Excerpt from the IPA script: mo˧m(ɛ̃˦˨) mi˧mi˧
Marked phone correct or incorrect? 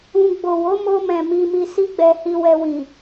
incorrect